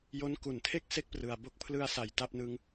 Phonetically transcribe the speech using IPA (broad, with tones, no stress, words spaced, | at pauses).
jo˦˥nku˨˩ntʰe˥˩k̚ se˥˩k̚prɯ˨˩a̯ bo˦˥k̚pʰlɯ˧a̯sa˨˩j ta˦˥p̚nɯ˦˥ŋ